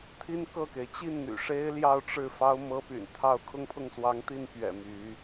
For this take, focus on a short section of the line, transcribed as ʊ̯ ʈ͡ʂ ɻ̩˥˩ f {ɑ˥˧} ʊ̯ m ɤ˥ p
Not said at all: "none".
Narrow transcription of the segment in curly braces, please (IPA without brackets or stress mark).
ɑ˥